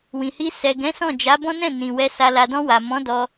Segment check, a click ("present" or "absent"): absent